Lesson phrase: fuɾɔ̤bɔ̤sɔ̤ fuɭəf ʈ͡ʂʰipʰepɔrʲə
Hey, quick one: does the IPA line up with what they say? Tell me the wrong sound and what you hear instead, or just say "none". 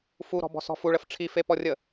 pʰ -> f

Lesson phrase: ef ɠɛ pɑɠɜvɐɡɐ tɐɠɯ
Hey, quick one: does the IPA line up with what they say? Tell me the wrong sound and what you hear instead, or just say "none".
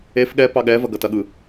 ɜ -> ɛ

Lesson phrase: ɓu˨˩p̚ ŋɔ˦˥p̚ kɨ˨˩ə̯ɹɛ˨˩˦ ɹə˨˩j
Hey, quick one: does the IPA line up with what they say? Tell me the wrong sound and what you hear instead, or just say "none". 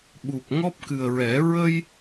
ə˨˩ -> ə˧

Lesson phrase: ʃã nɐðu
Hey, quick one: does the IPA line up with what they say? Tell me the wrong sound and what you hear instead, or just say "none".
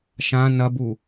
ð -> b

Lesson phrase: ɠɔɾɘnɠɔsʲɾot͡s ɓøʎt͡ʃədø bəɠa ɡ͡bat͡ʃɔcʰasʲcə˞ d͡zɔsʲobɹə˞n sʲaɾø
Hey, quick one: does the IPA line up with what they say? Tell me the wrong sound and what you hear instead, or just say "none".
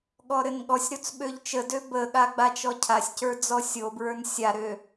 none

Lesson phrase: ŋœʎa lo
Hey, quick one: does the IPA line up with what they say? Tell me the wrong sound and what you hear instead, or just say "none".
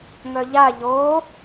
l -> ʎ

